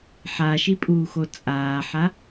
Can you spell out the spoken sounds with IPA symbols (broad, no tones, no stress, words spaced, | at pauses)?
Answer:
ħaʃipʼuːxo t͡sʼaːħa